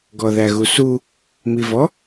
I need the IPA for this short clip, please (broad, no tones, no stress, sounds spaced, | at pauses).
ɡ ɔ ð æ ɣ u s u | m i v ɔ